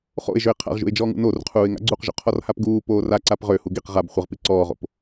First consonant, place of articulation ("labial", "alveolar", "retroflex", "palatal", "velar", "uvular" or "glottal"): uvular